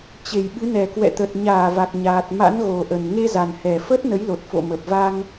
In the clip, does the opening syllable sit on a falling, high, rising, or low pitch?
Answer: low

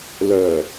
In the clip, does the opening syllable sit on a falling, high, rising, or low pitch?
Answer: low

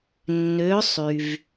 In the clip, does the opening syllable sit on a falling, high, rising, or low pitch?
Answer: rising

